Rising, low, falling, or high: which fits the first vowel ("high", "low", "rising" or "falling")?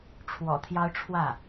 low